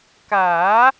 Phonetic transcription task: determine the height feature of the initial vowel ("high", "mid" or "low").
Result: low